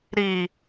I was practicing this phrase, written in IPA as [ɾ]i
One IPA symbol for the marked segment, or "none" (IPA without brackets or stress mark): ɾ